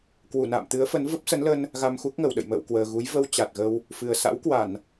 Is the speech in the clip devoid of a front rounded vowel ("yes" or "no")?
yes